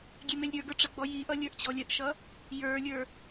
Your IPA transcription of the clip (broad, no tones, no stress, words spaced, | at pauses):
ɡʲemelʲɾʲə˞ ɡə˞ʈ͡ʂəɡ͡bɔ jiʔʌlʲə˞ʔ t͡ɕɔlʲəʔʃʌ | jə˞lʲə˞